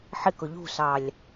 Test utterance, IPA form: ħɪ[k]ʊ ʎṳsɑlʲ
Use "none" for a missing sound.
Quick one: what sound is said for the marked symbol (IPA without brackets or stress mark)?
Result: k